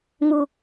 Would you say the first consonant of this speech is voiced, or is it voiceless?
voiced